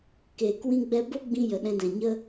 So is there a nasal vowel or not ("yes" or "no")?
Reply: yes